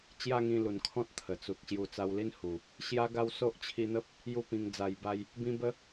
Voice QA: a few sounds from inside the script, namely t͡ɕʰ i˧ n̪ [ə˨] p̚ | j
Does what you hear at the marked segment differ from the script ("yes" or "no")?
yes